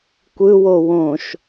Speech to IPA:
kʷ ɯ w o w õ ʃ

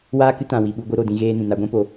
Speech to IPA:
w aː˦ k ɨ˦ t ã˨ w i˨ ɓ u˧ ɡʷ ɨ˧ ɾ o˨ d ĩ˧ ɣ eː˧ n ĩ˨ n a˧ ɡʷ ɛ̃˦ p o˧

